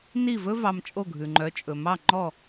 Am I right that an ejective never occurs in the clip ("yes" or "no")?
no